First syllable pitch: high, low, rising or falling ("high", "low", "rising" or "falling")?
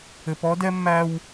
low